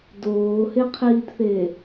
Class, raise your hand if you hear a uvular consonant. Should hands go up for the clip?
yes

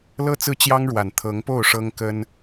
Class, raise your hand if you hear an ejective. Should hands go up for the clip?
no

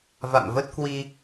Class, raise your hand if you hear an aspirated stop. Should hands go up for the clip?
no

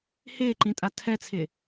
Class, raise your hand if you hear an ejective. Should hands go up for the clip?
yes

